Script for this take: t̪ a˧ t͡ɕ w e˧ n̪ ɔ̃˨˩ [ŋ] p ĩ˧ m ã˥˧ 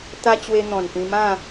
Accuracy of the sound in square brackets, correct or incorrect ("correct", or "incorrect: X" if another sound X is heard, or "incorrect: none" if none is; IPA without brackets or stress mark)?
incorrect: n